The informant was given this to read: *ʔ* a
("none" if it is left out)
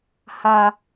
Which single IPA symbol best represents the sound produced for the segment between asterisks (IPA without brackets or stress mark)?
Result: h